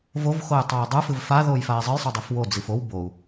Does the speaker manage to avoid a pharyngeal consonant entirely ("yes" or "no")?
yes